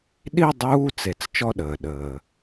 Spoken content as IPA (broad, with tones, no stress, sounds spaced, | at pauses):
ɗ i˦˨ dˤ uː˧˥˧ t͡s e˩ t͡s t͡ʃ ɔ˦˨ ɗ əː˩ ɗ əː˩